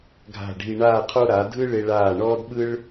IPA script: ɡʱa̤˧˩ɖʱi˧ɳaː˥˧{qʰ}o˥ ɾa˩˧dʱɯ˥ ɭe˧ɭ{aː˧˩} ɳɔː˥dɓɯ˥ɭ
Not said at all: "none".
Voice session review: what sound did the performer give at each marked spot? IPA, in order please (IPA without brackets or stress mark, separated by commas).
qʰ, aː˧˩